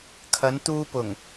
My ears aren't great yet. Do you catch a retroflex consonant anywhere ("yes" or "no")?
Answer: no